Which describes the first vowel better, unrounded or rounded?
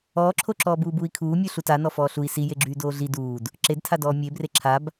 rounded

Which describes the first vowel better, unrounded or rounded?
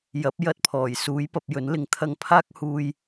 unrounded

